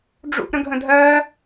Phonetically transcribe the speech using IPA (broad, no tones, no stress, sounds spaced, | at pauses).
ɖ͡ʐ ṵ ʔ ɾ ə̃ ɡʱ ə̃ dʱ ɜ